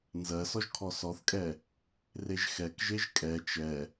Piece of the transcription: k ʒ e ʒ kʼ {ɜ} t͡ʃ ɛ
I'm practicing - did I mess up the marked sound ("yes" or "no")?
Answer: yes